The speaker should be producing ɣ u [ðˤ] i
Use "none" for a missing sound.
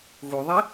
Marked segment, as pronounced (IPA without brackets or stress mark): ðˤ